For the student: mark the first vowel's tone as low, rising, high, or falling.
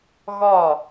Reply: falling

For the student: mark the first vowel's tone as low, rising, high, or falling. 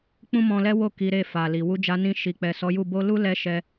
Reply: high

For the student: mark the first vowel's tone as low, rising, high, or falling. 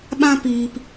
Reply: high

